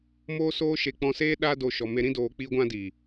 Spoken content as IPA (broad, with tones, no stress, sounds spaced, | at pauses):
m oː˦ s oː˦ ʃ e˧ k͡p ɔ̃˧ s eː˦ ɗ a˦ d o˧ ʃ ɔ˨ m e˧ ɾ ĩ˦ d oː˧ k͡p iː˦ ɡʷ ã˦ d iː˨